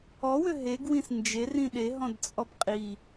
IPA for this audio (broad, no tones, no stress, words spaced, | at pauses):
ɔwʏ ɦeɡwĩs nd͡ʒerĩ ɗeɦɔ̃dt͡sʼɔb qʼi